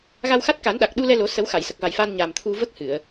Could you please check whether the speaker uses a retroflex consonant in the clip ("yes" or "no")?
no